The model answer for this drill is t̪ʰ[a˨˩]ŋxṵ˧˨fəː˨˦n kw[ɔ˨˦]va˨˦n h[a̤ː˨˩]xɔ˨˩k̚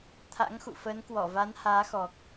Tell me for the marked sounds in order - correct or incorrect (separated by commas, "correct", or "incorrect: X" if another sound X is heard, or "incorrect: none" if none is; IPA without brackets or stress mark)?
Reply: incorrect: a̰˧˥, incorrect: ɔ˧˩, incorrect: aː˨˦